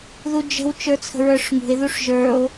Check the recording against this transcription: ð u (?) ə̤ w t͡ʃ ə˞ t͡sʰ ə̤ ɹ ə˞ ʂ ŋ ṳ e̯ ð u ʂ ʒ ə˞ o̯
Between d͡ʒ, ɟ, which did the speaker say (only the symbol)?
d͡ʒ